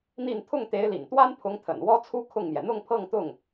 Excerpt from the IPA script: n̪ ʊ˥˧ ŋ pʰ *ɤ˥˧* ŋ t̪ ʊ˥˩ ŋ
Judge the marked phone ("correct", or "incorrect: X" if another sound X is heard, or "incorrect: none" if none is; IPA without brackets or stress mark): correct